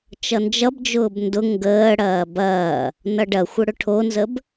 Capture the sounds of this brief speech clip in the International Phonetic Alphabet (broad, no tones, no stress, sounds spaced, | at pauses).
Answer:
t͡ʃ ʌ n d͡ʒ ʌ b d͡ʒ ʊː b n d ʊ ŋ ɡ əː ɽ ɐː b ɐː | n ʌ ɖ ɐ xʷ ə ɽ ʊ ʈʰ o n z ə b